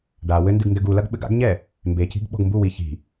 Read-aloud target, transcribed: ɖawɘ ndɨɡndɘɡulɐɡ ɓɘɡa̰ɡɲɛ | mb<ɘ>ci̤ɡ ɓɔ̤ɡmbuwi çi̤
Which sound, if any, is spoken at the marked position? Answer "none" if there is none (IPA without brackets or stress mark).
e